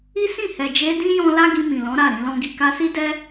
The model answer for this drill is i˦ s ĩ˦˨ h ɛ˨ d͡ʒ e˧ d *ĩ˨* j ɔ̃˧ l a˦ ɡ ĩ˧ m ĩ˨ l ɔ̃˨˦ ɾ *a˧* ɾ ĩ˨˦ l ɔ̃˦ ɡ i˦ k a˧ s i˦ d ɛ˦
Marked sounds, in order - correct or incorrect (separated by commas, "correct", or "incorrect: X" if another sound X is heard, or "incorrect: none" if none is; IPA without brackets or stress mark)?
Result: incorrect: ĩ˦, incorrect: a˦˨